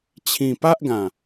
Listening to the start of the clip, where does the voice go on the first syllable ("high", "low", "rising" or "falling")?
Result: low